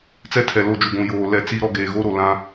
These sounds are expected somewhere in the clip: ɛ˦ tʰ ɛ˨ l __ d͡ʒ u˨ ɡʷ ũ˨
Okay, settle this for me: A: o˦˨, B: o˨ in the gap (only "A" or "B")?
A